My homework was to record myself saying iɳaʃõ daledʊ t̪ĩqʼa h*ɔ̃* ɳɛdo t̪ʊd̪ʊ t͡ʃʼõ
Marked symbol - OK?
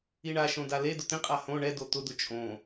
no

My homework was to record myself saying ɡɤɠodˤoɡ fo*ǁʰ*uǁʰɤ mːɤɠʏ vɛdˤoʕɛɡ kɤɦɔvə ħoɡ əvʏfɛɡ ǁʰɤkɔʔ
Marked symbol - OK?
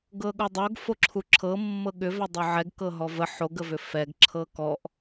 yes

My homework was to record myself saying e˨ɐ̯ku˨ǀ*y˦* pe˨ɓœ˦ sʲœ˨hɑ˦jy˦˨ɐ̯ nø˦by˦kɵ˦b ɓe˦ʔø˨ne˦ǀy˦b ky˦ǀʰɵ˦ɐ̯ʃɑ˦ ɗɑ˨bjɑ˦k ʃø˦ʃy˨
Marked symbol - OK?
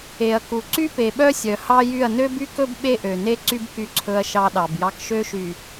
yes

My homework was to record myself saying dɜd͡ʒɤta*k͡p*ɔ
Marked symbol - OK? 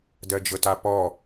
no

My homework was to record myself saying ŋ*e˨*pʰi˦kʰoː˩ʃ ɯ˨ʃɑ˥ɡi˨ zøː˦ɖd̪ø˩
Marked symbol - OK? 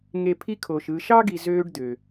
yes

